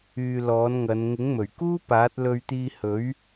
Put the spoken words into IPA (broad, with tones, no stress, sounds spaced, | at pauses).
yː˧ l ɔː˨˥ n ŋ ɐ˨˧ n ŋ ɪ˨˥ ŋ m ɵ˨˩ ɥ k uː˥ p aː˨˥ t̚ l ɵ˧ ɥ t̪ iː˧ h ɵ˨˥ ɥ